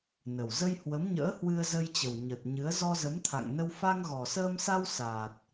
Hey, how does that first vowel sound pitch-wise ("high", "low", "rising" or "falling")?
low